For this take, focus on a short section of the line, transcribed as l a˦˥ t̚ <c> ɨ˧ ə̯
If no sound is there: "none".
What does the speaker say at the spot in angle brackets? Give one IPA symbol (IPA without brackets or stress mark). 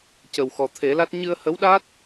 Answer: ɲ